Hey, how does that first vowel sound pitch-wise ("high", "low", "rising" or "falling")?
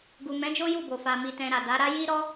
low